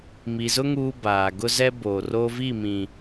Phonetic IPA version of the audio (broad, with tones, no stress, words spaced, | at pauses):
mi˨zʊ˦ ŋuː˦baː˨ ɡʊ˦zɛ˦ boː˨roː˦viː˦˨ mĩ˨